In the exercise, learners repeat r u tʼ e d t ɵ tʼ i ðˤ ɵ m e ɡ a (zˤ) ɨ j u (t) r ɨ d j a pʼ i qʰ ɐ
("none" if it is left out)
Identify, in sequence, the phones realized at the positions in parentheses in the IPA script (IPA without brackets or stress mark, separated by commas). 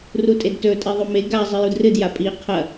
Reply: zˤ, d